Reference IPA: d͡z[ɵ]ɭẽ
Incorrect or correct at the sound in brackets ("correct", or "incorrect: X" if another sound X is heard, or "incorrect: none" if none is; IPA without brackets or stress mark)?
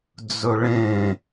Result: correct